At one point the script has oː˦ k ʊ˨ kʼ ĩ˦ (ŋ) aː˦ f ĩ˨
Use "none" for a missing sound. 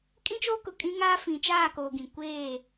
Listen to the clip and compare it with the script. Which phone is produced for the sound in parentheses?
ŋ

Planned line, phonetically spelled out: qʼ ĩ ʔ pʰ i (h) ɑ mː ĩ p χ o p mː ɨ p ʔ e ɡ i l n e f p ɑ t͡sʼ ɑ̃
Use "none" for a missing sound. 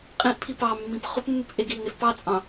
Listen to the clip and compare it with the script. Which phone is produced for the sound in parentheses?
p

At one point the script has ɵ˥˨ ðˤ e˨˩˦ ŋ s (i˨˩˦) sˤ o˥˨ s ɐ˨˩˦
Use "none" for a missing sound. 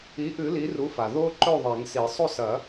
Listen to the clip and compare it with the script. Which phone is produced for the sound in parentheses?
i˨˩˦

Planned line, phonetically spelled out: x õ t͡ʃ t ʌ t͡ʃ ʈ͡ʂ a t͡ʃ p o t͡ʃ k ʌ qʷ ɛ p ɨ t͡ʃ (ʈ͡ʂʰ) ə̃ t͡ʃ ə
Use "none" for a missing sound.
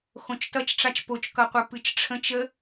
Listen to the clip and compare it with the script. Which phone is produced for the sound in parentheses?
ʈ͡ʂʰ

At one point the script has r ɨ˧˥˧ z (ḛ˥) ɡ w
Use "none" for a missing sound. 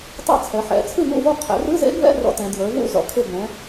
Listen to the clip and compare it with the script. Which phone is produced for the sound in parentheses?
ḛ˥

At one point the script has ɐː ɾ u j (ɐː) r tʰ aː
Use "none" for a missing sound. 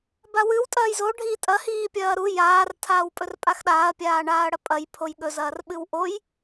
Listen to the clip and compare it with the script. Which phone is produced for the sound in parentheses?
aː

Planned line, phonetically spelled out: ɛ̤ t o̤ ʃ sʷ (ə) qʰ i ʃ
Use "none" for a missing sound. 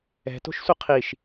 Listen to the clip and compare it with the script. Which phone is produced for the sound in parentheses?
ə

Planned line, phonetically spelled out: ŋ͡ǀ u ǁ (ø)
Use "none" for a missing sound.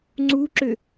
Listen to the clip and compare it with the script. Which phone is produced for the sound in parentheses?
ø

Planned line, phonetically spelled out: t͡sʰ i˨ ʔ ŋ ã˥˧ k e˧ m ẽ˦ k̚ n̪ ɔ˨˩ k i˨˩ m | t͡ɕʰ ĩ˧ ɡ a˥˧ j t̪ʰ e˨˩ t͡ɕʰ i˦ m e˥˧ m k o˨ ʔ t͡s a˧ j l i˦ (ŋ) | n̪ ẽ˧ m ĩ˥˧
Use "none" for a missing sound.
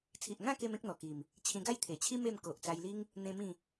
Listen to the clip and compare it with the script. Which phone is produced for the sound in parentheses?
ŋ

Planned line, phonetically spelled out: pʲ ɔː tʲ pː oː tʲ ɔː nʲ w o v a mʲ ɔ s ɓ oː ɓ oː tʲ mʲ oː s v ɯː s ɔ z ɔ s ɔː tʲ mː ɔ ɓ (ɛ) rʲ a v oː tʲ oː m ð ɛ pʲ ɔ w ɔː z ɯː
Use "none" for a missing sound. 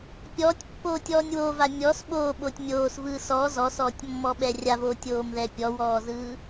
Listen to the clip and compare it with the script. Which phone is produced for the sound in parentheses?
ɛ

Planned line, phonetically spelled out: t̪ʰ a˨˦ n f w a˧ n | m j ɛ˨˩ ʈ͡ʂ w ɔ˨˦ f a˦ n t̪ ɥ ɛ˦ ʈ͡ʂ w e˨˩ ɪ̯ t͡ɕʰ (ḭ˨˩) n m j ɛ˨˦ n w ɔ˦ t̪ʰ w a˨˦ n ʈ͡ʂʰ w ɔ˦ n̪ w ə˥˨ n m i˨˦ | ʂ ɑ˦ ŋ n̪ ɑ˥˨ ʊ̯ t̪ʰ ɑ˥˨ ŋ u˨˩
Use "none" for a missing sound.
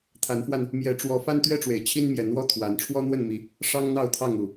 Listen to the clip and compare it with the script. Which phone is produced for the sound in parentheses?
i˦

